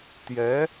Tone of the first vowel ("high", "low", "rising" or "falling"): rising